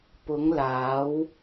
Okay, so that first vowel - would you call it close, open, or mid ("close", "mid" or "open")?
close